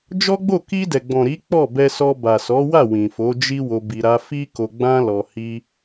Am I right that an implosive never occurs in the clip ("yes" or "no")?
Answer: yes